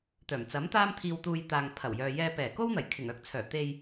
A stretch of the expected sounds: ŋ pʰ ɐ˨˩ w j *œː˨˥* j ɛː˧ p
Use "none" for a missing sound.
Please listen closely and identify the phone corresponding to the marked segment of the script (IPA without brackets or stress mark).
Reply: œː˨